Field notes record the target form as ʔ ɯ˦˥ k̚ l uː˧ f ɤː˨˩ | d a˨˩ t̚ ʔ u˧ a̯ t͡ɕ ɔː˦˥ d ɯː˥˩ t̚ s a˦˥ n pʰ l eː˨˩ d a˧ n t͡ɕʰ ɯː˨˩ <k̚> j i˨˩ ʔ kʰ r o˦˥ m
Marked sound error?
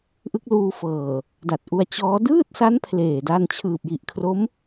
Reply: yes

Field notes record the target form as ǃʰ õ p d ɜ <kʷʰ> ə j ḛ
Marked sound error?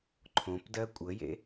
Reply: yes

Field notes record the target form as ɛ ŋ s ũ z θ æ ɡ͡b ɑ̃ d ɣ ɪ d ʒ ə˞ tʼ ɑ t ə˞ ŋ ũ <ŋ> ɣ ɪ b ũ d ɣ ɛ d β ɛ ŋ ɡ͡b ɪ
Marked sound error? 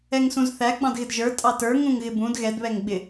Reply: no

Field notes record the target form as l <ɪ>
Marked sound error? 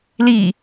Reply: yes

